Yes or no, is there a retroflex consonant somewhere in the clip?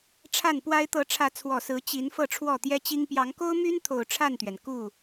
yes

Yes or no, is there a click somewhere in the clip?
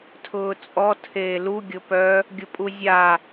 no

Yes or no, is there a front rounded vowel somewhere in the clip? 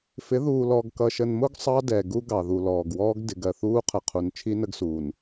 no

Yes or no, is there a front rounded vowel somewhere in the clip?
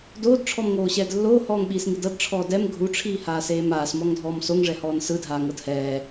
no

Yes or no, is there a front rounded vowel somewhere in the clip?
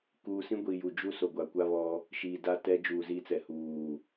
no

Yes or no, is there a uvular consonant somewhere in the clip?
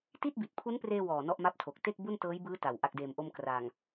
no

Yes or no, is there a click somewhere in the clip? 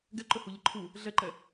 yes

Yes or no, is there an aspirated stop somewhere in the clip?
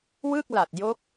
no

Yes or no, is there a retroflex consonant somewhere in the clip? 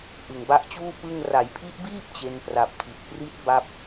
no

